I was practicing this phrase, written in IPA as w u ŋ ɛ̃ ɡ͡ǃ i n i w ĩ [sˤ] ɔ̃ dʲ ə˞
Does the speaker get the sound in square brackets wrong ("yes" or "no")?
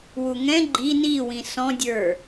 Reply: yes